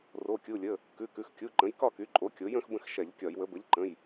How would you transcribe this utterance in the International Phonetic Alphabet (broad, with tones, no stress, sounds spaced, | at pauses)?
r o˩˧˩ kʲ u˩˧˩ lʲ ə˩˧˩ | k ʉ˩˧˩ k ʉ˩˧˩ x kʲ u˩˧˩ ǃ ə̃˩˥ j k ɒ˥˨ k y˩˥ ǃʼ o˩˥ kʲ o˩˥ j ə̃˩˥ x b ə̃˥˨ x ʃ ɛ˧˩˧ ʎ kʲ ɒ˧˩˧ j w ə˩˥ b ə˩˥ ʎ ǃ ə̃˩˧˩ j